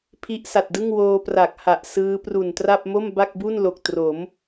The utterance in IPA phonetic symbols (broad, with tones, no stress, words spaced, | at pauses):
pʰi˦˥ʔsa˨˩t̚dɯ˥˩ŋ woː˧pra˨˩k̚ ha˨˩ʔsɯː˦˥ pru˨˩ntra˥˩p̚ mo˥˩mba˥˩k̚bu˥˩n lo˨˩k̚tro˩˦m